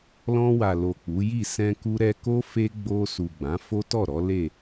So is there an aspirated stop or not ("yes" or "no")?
no